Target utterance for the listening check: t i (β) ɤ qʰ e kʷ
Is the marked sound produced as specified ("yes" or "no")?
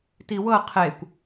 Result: no